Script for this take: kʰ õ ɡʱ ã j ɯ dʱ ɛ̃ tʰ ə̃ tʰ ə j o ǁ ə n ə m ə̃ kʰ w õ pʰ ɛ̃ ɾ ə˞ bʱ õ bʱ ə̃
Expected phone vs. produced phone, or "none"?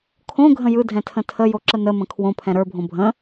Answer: ã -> ə̃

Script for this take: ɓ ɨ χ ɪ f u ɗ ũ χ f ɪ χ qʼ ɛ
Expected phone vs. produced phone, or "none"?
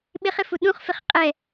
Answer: ɨ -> ɪ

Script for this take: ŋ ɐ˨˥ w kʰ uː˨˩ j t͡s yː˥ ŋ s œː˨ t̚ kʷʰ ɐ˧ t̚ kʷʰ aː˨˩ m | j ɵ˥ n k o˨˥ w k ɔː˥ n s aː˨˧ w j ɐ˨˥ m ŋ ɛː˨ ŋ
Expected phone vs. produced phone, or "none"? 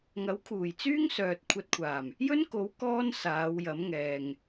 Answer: none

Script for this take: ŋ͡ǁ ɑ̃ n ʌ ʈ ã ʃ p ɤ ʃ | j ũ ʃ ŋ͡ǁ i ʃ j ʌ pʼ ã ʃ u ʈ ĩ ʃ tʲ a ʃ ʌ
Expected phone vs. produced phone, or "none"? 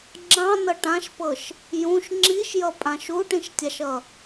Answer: none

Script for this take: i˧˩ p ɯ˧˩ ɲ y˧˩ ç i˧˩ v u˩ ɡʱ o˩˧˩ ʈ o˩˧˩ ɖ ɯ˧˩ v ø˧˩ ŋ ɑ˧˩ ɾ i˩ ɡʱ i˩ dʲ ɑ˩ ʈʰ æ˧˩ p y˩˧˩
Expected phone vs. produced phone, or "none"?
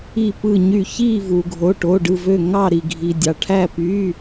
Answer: none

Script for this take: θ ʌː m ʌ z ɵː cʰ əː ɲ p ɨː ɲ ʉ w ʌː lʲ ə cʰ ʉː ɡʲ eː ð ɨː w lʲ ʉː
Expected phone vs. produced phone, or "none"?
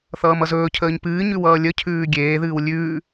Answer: none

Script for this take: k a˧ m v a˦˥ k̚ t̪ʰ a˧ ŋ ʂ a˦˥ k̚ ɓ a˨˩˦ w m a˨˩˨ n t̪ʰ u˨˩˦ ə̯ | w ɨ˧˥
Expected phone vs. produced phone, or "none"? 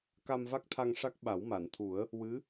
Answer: none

